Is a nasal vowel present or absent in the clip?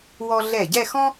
present